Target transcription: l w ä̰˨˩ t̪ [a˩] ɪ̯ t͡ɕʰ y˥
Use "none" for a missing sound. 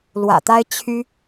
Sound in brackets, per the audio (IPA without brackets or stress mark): a˥